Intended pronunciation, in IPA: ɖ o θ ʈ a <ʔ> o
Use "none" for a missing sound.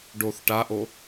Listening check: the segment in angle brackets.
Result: ʔ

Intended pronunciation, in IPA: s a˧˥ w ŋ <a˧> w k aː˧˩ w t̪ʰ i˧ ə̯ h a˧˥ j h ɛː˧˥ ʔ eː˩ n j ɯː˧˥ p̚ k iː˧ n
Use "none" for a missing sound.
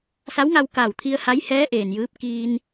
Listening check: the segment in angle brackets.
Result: a˧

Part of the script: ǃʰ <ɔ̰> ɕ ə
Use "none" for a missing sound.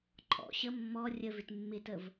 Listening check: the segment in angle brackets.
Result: ɔ̰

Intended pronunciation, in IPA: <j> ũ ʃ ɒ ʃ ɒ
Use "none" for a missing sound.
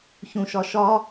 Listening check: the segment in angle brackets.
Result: ç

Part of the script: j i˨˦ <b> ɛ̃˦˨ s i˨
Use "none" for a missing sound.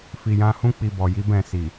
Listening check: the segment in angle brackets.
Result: b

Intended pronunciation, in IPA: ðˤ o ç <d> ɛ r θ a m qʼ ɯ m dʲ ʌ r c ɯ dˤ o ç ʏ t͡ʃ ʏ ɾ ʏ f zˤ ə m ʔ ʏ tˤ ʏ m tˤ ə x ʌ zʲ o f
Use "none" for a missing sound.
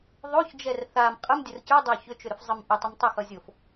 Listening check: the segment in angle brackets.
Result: d͡ʒ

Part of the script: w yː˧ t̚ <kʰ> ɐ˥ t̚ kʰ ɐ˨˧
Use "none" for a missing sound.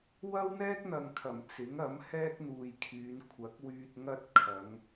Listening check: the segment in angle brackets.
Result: ŋ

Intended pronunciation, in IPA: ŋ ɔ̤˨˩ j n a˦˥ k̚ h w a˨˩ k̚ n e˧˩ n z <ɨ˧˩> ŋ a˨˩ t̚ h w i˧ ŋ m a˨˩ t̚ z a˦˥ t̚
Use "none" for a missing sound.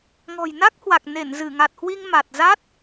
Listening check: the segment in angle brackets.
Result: ɨ˧˩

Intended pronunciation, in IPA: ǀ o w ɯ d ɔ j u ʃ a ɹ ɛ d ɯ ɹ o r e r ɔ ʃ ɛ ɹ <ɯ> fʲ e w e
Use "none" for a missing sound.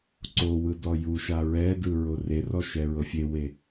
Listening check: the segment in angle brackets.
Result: ɤ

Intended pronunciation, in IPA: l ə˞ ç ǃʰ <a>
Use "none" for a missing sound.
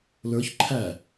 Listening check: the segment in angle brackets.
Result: æ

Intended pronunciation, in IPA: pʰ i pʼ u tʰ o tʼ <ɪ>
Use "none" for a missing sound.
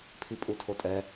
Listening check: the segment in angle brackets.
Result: ɛ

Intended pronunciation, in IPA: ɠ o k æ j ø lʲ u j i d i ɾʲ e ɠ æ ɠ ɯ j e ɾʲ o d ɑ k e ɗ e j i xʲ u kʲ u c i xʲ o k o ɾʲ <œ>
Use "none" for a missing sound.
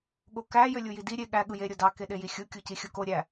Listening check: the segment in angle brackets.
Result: æ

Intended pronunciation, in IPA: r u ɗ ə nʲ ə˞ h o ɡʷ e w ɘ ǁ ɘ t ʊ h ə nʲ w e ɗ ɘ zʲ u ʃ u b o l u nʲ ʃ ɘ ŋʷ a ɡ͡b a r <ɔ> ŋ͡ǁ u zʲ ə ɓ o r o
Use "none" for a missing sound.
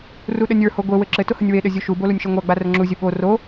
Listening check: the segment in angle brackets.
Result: ə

